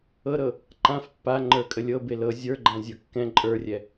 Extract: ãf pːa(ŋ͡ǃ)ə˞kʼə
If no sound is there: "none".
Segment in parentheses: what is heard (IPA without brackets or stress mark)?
ŋ͡ǃ